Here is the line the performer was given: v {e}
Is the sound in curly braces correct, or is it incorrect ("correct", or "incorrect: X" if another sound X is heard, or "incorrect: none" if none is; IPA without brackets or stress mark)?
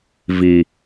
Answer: incorrect: i